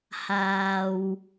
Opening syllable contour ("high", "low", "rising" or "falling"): low